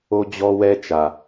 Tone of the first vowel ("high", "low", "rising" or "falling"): high